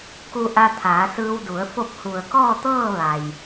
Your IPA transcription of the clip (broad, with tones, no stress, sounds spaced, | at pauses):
k u˧ ʔ a˧ t̪ʰ aː˩˧ s ɯː˧ w d u˩˧ ə̯ f o˥˨ p̚ h u˩ ə̯ k ɔː˥˨ t̪ ɤː˥˨ ʋ a˩ j